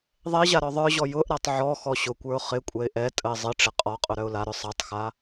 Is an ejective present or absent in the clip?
present